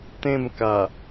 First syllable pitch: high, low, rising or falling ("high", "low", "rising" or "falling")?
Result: falling